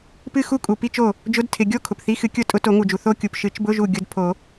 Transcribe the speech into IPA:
pɨ˥˧xu˥˧kʼu˩ pi˥˧t͡ʃo˧˩ | d͡ʒʊ˧˥˧d tʰɪ˩ ɡʲo˥˧ kʰʊ˩pθi˧˥˧xɨ˨˩˦ kʲʊ˧˩tʼʊ˧ to˨˩˦ŋu˩d͡ʒu˩ θo˧ kʲu˩pʃɨ˨˩˦t͡ʃbʊ˧˥˧ʒu˧˩ ɡʲʊ˧d pʰo˨˩˦

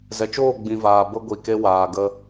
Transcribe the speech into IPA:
zɛ˨t͡ʃoː˦˨ɡ͡bĩ˨vaː˨ bə˧ɡʷi˨ke˧ waː˨ɡə˧

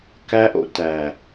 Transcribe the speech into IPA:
kæ˦ʔo̰˨ tæ˨

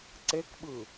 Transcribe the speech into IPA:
ǀekɓɯ

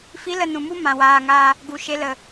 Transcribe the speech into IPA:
fi˨˦lə˨ nũ˨mu˦ mã˨ waː˨ŋaː˧ | ɡu˨ʃe˧lə˨

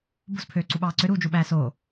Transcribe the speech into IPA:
bo̤spʰøːǀuɓɑː ǀøɾuːd͡ʒuɓæː so

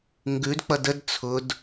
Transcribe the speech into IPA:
ŋɡʉdk͡pʌd əd t͡sʰʊd

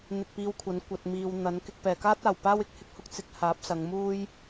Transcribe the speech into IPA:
n̪ɪ˧k̚piː˧wkʷʰɐ˨˥n kʷɐ˨t̚miː˨w n̪ɐ˨˥nkɪ˧k̚ pɛː˨˩kaː˥t̚aː˨˩w paː˥wɪ˨˥k̚hɪ˥k̚hʊ˥k̚ t͡sɪ˨˥k̚haː˨˥p̚sɐ˨˧ŋ muː˥j

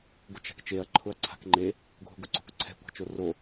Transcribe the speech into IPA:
ɡʊt͡ʃa̤kt͡ʃeɐ̯ ǃʰʊɐ̯ǀʰa̤kŋ͡ǃe | ɡʱo̤ɡʊǀo̤kǀʰɛ̤ kʷa̤t͡ʃoro

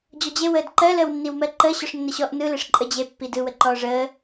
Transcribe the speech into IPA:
d͡ʑɔd͡ʑewəːd ǃɜləːwnːiwmɜ ǃə ɕɔʂnːəɕɔʔ nɯleʂ ǃʼəd͡ʑe pːidɯwə ǃɔːʐəː

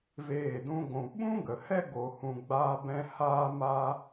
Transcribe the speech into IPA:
veː˦˨dũ˦ɡʷũ˧ ɓũ˦ɡə˨hɛ˦ ɡo˧hũ˧ ɡ͡baː˦bɛ̃˦ haː˦ ma˦

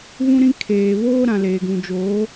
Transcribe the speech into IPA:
βũ˦ɾĩ˦ kʰeː˨βoː˦ ɾã˨leː˨ɡũ˨d͡ʒoː˨˦

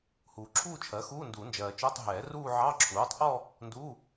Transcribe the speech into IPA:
huː˨ǁʰuː˥˧t͡ʃʰɜ˩˥xuː˧˥˧ nduː˨˩˦nd͡ʒɜː˨t͡ʃʊː˧˥˧tˤ ɦɛː˨˩˦ ruː˥˧ʕɑ˧˥˧ ǁʰuː˩˥tˤʔɔ˥˧ | nduː˧˥˧

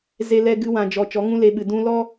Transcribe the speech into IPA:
ze˦lɛ˦ ɡɨ˦wã˧d͡ʒɔ˧ t͡ʃɔ˨˦ŋũ˦le˧ɓɨ˨ dũ˧ lɔ˦

